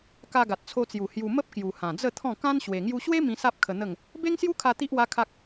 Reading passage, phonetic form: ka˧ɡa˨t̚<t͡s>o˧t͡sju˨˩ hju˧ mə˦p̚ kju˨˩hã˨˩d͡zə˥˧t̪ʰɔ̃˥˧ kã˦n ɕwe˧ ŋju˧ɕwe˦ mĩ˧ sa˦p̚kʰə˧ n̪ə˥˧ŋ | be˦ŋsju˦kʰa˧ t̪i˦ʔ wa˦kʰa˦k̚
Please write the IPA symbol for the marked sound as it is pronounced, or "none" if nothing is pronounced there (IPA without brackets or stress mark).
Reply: t͡sʰ